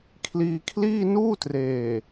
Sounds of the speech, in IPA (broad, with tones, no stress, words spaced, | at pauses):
kʰliː˧kʰliː˥˩nuː˥˩treː˨˩